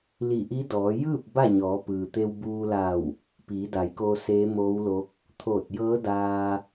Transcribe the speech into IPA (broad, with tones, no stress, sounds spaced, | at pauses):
l i˧˩ ʔ i˧˥ d ɔː˩˧ j ɯː˥˨ p̚ b a˥˨ ɲ ɔː˩˧ p ɯː˩ t̪ e˧ w b uː˧ l a˧˩ w | p iː˩˧ d a˩˧ j k oː˧ s eː˧˥ m oː˧˥ w l o˧˥ k̚ | t̪ʰ oː˧˩ t̚ j ɤː˧˥ d aː˧